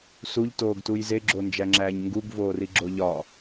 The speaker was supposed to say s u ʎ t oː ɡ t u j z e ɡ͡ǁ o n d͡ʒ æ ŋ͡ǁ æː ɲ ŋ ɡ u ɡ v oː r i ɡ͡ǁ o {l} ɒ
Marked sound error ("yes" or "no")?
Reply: yes